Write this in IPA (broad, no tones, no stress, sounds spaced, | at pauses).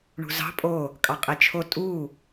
ɳ ṳ z ɑ̤ pʼ o | kʼ ɑ qʼ e t͡ʃʰ o tʼ u